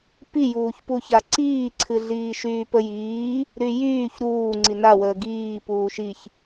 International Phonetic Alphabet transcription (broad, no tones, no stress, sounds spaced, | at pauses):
p i j uː ç p u ç a ǀ iː ǀʰ ɨ ɮ iː ʃ yː p ə j iː | ɾ y j yː ç ɾ uː ŋ͡ǀ i n a w əː ɡ iː p uː ʃ i ç